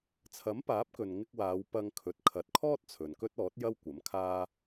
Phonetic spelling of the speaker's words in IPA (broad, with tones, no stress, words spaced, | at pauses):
t͡sʰɐ˨˥mpaː˨˥p̚kɵ˨n ŋɪ˧k̚waː˨˧w pɐ˧ŋkʰɵ˨t̚ kʰɐ˨˥t̚kʰɔː˥t̚ t͡sʰɵ˨nkɵ˥t̚ɔː˨˥t̚jɐ˥w kʷɐ˨˥mkʰaː˥